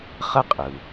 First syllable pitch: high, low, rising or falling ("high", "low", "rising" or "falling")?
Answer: high